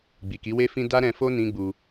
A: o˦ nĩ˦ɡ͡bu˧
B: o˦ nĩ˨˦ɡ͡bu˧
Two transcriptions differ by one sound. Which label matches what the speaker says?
A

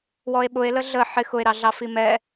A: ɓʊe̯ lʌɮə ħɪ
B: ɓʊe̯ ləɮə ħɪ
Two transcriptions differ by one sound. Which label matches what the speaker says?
B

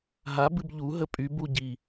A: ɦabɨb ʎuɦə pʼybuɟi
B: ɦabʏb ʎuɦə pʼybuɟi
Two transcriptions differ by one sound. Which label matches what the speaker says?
A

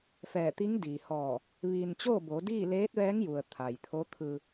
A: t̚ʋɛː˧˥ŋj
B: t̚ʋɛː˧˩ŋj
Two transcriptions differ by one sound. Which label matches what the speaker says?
A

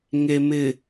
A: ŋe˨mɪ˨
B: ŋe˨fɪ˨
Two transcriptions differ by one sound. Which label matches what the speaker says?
A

